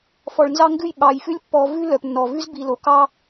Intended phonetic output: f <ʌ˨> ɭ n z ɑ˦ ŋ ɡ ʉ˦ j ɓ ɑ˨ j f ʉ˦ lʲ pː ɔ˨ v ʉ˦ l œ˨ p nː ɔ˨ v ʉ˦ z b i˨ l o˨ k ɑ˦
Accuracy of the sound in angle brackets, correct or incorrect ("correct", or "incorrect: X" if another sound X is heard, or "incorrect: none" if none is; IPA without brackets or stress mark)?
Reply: incorrect: ɔ˨